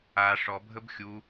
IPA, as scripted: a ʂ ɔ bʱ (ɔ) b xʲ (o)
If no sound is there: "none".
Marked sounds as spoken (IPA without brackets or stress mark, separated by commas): ə, u